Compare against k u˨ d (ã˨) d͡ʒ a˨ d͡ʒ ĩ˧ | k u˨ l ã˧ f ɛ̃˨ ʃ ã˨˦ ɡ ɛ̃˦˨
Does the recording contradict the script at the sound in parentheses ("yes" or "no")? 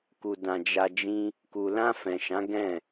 no